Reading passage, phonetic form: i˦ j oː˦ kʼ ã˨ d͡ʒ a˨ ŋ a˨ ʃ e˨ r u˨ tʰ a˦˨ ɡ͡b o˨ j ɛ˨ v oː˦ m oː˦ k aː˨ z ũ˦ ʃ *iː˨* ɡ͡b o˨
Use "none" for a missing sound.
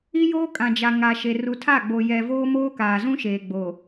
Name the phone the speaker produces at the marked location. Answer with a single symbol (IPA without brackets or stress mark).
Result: eː˨